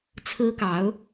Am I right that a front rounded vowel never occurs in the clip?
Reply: yes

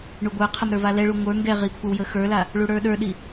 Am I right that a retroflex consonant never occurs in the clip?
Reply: no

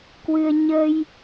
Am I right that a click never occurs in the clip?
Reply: yes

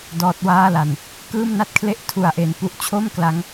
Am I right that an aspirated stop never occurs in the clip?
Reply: no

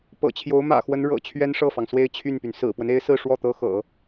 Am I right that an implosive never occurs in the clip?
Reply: yes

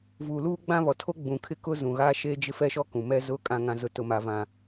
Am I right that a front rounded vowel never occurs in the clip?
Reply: yes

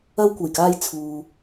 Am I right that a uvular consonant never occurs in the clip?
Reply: yes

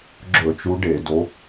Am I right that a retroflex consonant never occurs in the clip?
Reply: no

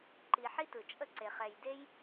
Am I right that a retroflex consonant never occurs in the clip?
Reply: yes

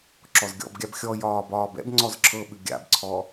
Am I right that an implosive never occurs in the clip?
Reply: no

